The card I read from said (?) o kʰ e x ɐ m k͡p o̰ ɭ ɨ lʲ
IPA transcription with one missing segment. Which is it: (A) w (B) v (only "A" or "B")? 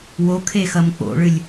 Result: A